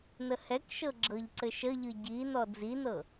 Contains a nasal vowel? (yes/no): no